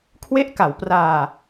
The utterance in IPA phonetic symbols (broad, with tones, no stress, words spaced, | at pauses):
kʰwe˦˥ʔka˩˦wpraː˧